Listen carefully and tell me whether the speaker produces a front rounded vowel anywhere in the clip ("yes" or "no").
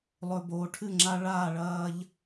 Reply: no